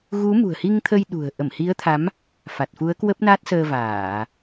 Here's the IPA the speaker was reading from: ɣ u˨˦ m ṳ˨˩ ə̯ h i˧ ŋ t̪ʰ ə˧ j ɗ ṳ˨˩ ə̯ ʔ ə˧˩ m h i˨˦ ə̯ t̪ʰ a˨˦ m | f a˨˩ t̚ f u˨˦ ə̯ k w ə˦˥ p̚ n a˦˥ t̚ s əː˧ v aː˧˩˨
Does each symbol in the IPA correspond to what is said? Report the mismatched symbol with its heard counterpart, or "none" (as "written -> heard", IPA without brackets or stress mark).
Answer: none